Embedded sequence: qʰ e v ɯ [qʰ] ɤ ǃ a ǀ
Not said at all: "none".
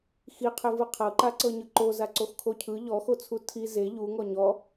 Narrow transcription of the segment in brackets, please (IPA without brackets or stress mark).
qʰ